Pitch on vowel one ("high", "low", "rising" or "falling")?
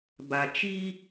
low